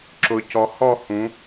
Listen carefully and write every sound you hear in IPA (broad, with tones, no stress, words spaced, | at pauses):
ǁʊ˩˧cɔ˩˧ hɔ˦˨hũ˩˧